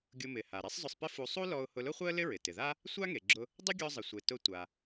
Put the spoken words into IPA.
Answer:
ɡʲ ʊ˧ m ɪ˩ h a˩ ɾ ɛ˥ sˤ zˤ ʊ˧ sˤ p ɪ˥ f u˧ sˤ u˥ l ɔ˧ ʊ̯ h ʊ˧ l ʊ˥ χʷ ɛ˥ ə̯ l ɪ˥ ɹ ɪ˩ t ɪ˩ ð a˥ | sʷ a˥ ŋ e˩ ɡ͡ǁ ʊ˧ | dˤ ɪ˥ ɡʲ ɔ˧ zˤ ɪ˩ sʷ e˩ t ʊ˧ tʷ a˩

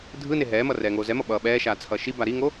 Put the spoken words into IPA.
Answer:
dʱ ɯ n e ɦ ɛː m ʌ r ɛː ŋ oː z ɛ m ʌ ɓ ʌː ɓ ɛː ʃ aː t͡sʰ ʌː ʃ i b a ɾ i ŋ o

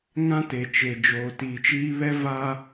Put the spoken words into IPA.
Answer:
ŋ ã˦ t e˨ t͡ʃ e˨ d͡ʒ oː˨ t iː˨ t͡ʃ iː˦ β ɛ˦ v a˦

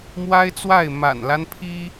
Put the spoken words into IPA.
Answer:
m w a˦ ɪ̯ t͡s w a˥˨ ɪ̯ m a̰˨˩ n l a˦ n pʰ i˦

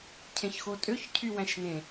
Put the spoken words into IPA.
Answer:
cʰ ẽ ç x o tʼ ø ç cʰ y w æ̃ ʃ n ẽ

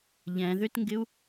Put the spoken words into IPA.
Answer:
ʎ ɛ̃ ð ʏ t ŋ ɡ ɪ u̯

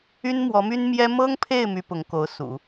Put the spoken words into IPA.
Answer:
y˥ n m w ɔ˧˥ m y˥ n m j ɛ˥ m ɤ˥ ŋ pʰ e˥˩ ɪ̯ m y˥ p ʊ˧˥ ŋ k o˧˥ ʊ̯ s ṵ˨˩˦

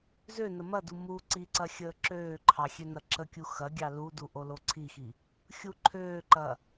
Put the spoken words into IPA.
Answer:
z ø n ə m ɐ d u m u ǀ i ǀ ɐ xʲ əː ǁ øː ǃʰ ɑ xʲ ø n ɐ ǁ ə kʲ u x ɐ ɡʲ ɑ l u d u ʔ o l o ǀʰ i x i | xʲ u ǃʰ øː ǃ ɐ

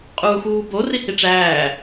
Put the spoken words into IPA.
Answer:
qʼ uː x uː b o r i h i ʈ͡ʂ æː

